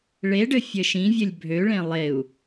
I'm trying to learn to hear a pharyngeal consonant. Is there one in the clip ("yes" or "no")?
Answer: no